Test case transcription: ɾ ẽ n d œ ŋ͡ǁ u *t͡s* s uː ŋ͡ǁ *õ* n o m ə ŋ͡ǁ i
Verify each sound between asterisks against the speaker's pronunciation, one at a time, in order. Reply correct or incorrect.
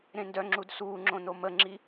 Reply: incorrect: d, correct

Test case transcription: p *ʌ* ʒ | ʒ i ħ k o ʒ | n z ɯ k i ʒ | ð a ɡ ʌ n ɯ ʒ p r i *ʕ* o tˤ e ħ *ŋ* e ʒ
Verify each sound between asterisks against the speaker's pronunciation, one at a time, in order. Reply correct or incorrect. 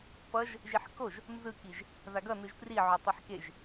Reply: correct, correct, incorrect: k

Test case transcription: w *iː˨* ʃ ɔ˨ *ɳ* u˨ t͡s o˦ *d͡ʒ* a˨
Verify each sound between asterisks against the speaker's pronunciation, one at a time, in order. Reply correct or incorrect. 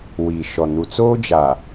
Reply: correct, incorrect: n, correct

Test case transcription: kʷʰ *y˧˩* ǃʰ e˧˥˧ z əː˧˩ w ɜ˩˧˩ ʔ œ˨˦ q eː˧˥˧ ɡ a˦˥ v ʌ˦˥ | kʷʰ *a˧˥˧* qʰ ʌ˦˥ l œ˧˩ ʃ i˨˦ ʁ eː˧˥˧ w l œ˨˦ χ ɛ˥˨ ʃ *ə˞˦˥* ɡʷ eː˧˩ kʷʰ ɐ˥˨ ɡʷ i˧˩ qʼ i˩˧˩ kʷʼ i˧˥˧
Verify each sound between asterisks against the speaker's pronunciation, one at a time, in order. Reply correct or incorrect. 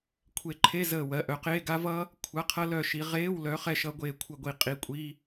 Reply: incorrect: e˧˩, correct, incorrect: ʌ˦˥

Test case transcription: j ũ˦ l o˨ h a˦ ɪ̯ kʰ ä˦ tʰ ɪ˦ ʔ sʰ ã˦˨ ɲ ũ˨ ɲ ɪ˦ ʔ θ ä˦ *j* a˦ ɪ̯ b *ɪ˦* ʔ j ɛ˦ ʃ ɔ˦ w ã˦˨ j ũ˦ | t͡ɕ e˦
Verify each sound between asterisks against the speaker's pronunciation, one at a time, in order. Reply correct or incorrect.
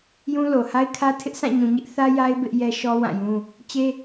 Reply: correct, correct

